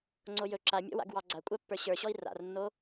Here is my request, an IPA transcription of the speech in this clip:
ŋ͡ǀojɵ ǁamʲɔ̰wa̰ɡ wɑɡ͡ǀakʷʼapːə˞ ɕə˞ɕɔi̯ ra̰rnːo

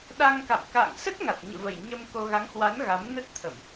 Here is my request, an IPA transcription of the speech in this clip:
ɗa˧ŋka̰˧˨m ka̰ː˧˨ŋsə˦˥t̚ŋa˨˩t̚ ɲɨ̰˧˨və˨˩j ɲə˧m ko˧ ɣa˨˦ŋhwa˨˦n ɣa˨˦mnə˦˥t̚t̪ʰə˧˩˨m

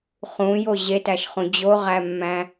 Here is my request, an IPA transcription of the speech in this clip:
χũjo ʑetæʃχũ d͡ʑoʁæmːæ̃

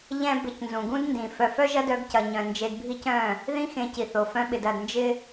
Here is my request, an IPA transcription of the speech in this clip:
ʎɛ̃˦ bɪ˧cnzũ˨ ɡũ˦d ndĩ˨ fœ˧ fœ˦ʒɐ˦ dœ˧ɡcɐ˨ɲœ̃˨ nd͡ʒe˧dbʱi˦cœ̃˦˨ | ðĩ˦xẽ˧ci˨θo˨ fœ̃˦ɓɪ˧dɐ˧d nd͡ʒɪ˦

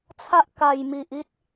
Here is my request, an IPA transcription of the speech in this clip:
t͡sʰa˦ʔka˨˩jmi˨ʔ i˦t̚

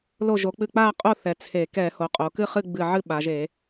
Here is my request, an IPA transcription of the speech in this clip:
lo˧˩ʒo˩˧k͡pɨ˧˩ k͡pa˥˨qʼo˥˨ θɛ˩˧ t͡sʰe˧˩˧ kɛ˧˩˧ho˩˧qʼo˩˧ kɨ˥˨χɨ˥˨ɡ͡bɨ˧˩ ʕɨ˥˨ɓa˩˧ʒe˧˩˧

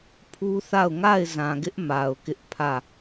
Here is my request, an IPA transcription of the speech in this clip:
pʰu˦θa˦˨ʊ̯ ŋa˦˨ɪ̯ zã˨ɡɪ˦ʔ ma˨ʊ̯kɪ˦ʔpʰä˦˨

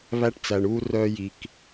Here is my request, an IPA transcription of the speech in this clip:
βæ˦ʈt͡sæ˨ɳ uː˦rœː˦ ji˨k

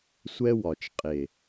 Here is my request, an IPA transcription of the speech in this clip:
sʷɛ˦wɒ˨t͡ʃqʼe˨

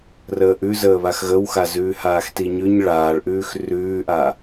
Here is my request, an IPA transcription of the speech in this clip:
rəːʔʉzəːβax ɣəwxa zʉːhaːxtiɲʉɲ ɭaːɭʔʉːx rʉːʔa

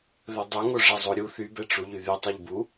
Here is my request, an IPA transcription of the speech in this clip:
ðœdˤoŋo ʐɛzˤoɾʲu θybɛ ʈ͡ʂuʎyðy tˤiʎbu

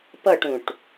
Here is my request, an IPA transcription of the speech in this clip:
pɤʈũʈ

